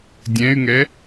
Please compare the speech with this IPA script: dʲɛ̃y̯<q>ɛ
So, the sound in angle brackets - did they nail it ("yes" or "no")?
no